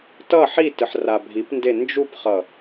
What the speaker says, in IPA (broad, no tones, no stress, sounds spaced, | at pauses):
t ʌ ħ i t ɯ ħ r a bʱ i p n d e n d͡ʒ u p χ ʌ